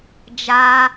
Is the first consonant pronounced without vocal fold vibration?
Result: no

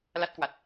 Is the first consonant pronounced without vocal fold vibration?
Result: no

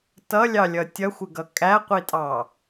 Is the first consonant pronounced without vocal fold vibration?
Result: yes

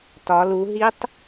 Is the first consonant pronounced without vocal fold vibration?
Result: yes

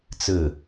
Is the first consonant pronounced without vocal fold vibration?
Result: yes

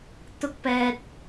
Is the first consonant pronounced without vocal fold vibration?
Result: yes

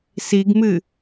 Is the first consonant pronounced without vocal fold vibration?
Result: yes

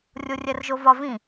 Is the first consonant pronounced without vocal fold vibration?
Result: no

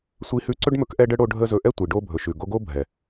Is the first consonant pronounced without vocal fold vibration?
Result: yes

